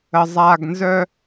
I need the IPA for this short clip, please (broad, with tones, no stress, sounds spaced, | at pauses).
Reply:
ə˩ zˤ a˩ ɡ n z œ˨